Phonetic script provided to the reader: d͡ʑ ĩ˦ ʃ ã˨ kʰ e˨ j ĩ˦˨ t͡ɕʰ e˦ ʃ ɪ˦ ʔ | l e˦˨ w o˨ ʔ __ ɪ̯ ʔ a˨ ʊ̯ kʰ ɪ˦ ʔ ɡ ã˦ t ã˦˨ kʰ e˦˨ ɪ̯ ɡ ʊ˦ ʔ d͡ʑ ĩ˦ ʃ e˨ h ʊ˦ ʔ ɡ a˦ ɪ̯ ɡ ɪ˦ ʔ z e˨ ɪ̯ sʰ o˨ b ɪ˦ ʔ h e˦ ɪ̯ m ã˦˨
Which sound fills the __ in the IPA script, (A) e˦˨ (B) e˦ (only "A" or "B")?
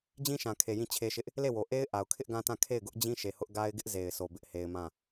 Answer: B